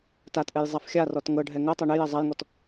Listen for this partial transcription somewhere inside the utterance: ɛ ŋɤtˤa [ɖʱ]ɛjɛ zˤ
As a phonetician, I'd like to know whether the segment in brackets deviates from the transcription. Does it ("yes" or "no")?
yes